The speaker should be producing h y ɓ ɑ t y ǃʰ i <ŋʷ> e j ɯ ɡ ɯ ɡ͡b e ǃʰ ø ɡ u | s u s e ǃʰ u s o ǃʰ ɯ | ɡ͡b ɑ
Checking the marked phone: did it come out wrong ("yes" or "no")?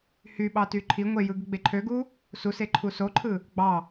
no